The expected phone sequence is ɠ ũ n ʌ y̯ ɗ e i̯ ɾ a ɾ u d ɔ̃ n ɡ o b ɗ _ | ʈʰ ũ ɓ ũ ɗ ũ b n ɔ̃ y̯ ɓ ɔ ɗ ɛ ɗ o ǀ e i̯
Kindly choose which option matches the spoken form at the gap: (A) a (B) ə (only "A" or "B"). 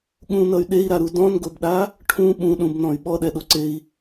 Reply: A